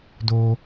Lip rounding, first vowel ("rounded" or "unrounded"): rounded